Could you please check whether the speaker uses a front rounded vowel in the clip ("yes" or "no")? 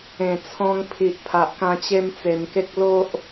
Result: no